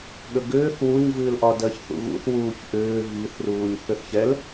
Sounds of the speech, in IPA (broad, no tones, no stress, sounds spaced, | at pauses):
ɠ ə ɡ ʏː θ w u ɲ v ɨː l ʔ ɒ d ɜ ç θ ṵ ɣ ṵ θ w uː ç ʔ ʏː v i θ r uː ɲ θ ʏ θ ç ɛ l